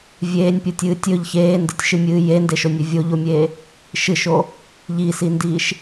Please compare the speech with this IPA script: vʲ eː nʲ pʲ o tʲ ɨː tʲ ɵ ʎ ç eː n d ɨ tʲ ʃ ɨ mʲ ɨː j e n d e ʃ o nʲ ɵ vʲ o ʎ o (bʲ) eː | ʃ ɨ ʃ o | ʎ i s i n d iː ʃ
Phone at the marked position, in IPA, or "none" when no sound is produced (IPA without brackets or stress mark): mʲ